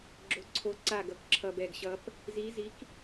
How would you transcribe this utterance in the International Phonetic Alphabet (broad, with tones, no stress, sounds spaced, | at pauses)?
ɡ͡ǁ o˧˩ ǀʰ o˧˥ ǀ a˧˩ ɡ ʌ˧˥ k ǁʰ ʌ˧˩ b ɛ˧˩ ɡ ɕ ʌ˧˥ p | z i˧˥ z i˧˥ k